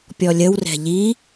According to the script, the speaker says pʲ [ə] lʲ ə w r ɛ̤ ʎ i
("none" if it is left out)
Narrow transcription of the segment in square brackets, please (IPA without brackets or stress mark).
ɔ